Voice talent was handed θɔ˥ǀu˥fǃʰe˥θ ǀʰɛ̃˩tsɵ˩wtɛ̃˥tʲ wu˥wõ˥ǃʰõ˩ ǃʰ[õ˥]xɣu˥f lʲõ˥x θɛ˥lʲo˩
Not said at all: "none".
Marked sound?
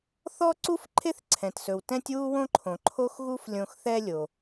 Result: o˥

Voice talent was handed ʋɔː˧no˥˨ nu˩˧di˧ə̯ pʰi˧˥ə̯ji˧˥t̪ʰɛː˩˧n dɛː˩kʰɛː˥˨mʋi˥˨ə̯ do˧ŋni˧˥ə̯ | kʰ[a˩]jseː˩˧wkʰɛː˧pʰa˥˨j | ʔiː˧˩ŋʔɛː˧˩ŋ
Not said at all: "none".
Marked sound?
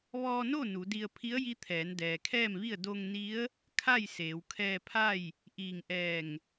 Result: a˥˨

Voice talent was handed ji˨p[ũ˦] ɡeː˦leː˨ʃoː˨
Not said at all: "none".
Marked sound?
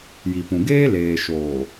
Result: ũ˨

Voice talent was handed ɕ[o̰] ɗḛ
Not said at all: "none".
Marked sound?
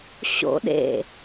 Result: o̰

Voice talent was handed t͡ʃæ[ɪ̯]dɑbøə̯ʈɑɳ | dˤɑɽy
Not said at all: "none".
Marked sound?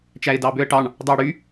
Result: ɪ̯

